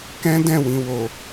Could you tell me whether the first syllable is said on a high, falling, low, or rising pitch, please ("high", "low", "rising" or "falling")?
high